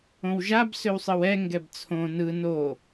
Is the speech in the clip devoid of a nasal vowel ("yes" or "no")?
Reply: no